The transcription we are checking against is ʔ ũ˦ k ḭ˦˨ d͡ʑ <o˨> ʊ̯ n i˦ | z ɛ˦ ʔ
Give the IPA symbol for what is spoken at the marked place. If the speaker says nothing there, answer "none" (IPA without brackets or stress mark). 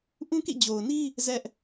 o˨